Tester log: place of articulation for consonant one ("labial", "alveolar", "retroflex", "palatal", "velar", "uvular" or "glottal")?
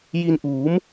palatal